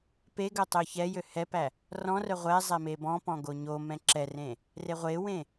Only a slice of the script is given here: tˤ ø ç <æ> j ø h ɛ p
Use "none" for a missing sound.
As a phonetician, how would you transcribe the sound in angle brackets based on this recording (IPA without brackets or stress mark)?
ɛ